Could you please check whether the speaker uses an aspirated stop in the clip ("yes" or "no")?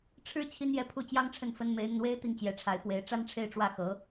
yes